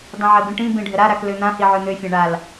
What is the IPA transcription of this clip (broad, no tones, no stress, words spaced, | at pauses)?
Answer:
dˤĩʕɜbĩʈĩ bĩɖʱəɾa ɾakløn̪ã hiʕøn̪ø fʲãɳal